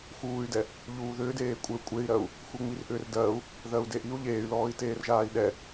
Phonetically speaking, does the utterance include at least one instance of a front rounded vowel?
yes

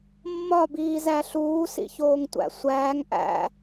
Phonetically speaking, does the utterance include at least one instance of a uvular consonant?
no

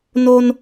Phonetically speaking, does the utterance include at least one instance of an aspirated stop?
no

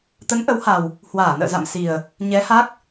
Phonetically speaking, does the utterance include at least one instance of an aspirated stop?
no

